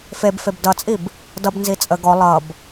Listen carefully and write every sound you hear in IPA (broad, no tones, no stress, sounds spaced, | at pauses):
f e b f e b d ʌ t͡sʼ i b | d ʌ b n z i t͡sʼ ə ɡ ɔ lˠ ʌ b